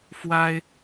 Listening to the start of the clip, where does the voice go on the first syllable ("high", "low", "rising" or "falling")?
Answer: high